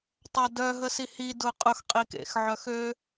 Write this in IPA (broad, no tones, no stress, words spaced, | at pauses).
tˤadœ ɦəsihi dʊqʼʊx qʼikḛxʕœxø